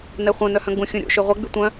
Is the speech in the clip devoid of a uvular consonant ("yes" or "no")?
no